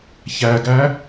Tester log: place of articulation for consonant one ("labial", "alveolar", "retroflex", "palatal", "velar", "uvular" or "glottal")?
palatal